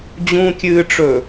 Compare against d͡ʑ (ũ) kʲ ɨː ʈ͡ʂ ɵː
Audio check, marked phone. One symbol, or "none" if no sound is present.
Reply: ũ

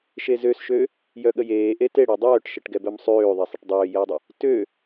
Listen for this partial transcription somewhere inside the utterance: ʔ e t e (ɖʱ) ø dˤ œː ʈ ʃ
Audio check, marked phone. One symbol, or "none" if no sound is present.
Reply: ɽ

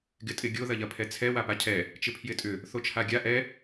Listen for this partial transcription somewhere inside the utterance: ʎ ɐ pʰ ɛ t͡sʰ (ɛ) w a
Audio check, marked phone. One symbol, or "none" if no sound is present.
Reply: ɛ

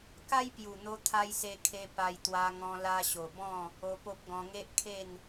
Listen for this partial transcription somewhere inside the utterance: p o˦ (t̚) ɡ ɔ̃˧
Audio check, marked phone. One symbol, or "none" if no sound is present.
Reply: p̚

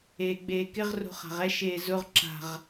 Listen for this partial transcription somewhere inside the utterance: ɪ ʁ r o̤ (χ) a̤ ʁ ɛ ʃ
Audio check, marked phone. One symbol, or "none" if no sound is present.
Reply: χ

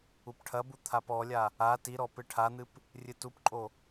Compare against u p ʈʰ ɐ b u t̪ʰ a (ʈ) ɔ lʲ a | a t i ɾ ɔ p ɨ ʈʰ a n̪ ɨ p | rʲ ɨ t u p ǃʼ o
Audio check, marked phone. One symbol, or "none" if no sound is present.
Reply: p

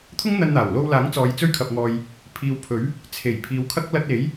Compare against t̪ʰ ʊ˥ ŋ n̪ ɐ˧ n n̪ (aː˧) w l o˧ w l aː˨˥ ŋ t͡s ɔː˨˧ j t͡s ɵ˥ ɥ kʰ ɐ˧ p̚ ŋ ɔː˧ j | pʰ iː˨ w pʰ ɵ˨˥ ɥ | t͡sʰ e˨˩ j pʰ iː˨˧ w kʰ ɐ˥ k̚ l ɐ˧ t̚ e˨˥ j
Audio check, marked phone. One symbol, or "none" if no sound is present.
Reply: aː˨˩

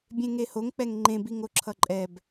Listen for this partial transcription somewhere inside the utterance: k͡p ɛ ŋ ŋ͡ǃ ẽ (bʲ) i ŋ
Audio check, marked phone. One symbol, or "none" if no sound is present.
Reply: b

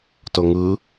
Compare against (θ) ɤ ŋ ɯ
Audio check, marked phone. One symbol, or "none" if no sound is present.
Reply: t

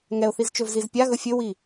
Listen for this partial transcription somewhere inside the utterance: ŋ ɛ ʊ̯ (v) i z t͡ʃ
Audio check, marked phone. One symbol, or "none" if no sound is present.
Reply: θ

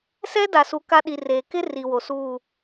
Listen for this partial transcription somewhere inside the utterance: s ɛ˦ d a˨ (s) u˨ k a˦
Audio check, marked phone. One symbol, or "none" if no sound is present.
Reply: s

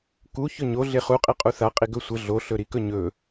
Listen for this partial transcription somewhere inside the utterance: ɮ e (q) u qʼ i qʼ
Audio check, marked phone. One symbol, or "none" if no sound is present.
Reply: χ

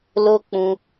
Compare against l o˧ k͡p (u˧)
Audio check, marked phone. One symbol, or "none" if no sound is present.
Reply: ũ˧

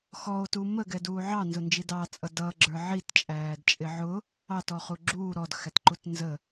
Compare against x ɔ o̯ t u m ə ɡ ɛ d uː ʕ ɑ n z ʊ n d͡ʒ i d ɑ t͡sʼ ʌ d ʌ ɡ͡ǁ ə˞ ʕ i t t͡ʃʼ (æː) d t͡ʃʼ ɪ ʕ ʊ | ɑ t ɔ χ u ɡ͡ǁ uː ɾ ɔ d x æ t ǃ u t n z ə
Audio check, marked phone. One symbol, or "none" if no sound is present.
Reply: æː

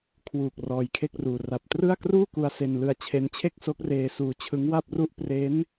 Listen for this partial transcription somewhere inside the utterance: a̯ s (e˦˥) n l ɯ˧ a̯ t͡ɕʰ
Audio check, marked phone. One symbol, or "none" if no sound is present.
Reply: e˧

